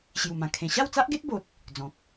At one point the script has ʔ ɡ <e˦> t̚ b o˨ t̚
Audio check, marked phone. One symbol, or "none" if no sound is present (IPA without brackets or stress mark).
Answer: e˦